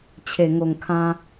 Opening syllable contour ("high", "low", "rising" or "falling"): low